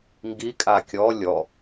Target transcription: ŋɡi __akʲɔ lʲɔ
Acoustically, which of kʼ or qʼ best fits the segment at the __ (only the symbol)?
kʼ